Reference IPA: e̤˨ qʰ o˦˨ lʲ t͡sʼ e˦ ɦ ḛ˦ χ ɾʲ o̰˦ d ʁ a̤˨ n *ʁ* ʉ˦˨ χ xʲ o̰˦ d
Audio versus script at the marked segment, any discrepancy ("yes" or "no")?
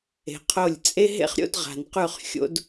yes